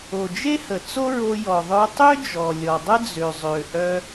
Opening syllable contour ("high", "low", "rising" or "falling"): low